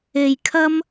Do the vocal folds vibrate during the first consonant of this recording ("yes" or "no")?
yes